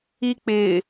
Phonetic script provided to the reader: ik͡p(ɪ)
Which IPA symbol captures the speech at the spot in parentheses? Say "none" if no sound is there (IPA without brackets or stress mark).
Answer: ɪ